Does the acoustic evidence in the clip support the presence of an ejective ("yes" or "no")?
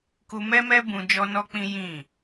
no